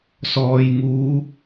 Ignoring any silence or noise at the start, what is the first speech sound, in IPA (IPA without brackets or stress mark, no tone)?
s